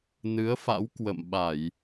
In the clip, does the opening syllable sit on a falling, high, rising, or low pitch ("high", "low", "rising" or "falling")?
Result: rising